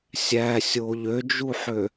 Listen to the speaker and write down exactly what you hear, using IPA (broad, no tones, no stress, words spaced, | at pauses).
sʲæsʲo ʎød͡ʒuħø